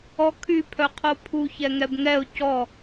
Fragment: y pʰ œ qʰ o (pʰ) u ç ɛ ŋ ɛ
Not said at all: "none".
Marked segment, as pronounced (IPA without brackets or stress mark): pʰ